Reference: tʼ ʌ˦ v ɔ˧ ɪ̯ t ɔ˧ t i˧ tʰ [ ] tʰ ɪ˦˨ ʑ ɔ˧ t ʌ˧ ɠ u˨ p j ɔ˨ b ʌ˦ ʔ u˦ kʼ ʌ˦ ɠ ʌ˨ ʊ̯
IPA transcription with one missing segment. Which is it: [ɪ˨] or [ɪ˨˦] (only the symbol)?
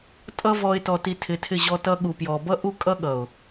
ɪ˨˦